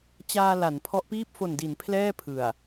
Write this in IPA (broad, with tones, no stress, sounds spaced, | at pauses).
t͡ɕ aː˧ l a˩˦ n pʰ ɔ˦˥ ʔ p iː˥˩ p̚ f o˨˩ n d i˩˦ n pʰ l ɛː˥˩ pʰ ɯ˨˩ a̯